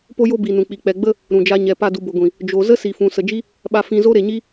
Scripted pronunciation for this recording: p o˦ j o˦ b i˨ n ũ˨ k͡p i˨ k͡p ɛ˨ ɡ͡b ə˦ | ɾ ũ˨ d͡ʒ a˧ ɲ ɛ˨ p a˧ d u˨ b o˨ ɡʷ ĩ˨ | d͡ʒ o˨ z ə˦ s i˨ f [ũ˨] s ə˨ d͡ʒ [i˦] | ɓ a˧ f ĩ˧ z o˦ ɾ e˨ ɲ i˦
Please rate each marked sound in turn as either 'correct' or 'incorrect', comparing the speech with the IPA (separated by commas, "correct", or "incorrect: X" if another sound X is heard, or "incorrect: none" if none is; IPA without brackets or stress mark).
correct, correct